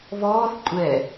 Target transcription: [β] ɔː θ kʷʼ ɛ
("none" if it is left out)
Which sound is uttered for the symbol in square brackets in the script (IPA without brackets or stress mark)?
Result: β